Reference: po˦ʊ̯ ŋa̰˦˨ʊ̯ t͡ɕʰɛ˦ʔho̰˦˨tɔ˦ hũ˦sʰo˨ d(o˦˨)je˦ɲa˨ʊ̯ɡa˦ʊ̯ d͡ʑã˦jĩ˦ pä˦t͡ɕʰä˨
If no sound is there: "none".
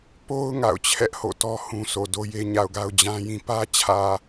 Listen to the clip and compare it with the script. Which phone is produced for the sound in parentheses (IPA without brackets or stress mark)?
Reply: o˦